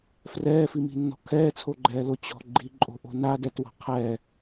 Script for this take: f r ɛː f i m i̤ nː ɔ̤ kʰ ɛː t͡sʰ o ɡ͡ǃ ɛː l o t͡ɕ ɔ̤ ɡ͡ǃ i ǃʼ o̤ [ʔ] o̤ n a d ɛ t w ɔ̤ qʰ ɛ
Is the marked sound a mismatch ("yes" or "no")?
no